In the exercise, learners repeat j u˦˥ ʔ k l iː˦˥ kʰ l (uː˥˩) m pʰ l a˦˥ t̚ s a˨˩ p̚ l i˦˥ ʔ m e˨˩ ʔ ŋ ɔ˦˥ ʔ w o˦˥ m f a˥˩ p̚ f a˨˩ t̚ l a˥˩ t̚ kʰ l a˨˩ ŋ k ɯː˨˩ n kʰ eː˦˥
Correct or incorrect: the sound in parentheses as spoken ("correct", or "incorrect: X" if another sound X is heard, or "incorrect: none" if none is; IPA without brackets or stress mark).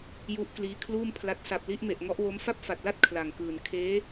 correct